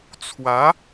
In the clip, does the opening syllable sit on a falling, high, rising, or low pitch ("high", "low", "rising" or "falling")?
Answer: rising